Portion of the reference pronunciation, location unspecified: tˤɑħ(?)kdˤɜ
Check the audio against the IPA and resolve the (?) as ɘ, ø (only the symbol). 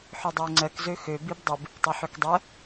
ø